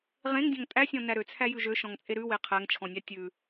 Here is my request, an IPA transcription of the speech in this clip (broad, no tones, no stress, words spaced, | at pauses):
ʁẽŋdʲɔ̃ŋ tʼæsʲɔ̃næ ɾøt͡sʰæjʉ ʒøʃɔ̃ŋt͡sʼe ɾʉwe qʰæŋt͡ʃʰɔ̃nʲɑ tʲʉ